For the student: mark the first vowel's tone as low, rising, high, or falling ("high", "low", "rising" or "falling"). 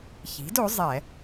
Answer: rising